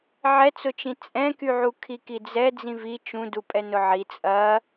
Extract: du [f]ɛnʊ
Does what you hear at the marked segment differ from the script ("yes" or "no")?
yes